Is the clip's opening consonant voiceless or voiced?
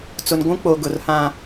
voiceless